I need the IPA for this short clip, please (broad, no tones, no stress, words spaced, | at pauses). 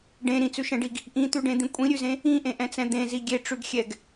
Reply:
ɖẽ ɾĩt͡sʉʃɛ̃ɖiɡ | ʔĩt̪ʉɖẽd̪ĩ kʷʼĩɾʲʉzẽ | ĩʔẽʔɛ̃t͡sɛ̃ d̪ẽzi ɡʲeʈ͡ʂʉɡxʲɛɡ